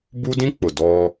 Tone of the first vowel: high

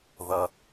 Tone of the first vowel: low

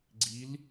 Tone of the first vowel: rising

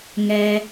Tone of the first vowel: low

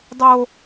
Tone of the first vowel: high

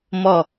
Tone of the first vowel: low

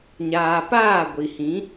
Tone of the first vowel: low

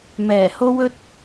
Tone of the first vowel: low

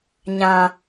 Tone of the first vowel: low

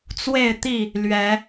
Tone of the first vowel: falling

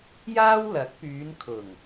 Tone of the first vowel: high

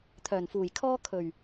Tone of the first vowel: low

